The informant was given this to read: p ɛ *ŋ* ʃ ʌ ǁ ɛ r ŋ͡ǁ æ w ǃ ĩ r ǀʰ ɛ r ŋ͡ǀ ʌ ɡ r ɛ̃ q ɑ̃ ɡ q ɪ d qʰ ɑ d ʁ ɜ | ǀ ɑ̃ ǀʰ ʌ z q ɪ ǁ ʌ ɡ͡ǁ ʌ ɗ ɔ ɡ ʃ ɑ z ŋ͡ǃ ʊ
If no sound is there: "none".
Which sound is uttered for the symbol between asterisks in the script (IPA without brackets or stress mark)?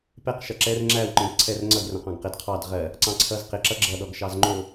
q